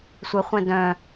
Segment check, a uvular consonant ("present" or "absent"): present